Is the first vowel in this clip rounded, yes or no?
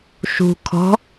yes